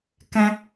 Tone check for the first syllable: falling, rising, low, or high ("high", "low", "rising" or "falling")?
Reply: high